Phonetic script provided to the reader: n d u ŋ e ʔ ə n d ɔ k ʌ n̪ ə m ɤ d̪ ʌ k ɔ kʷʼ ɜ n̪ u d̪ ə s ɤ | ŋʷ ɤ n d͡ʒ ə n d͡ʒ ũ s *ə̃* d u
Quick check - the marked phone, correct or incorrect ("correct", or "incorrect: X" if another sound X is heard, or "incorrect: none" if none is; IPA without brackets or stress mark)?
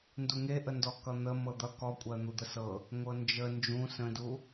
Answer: correct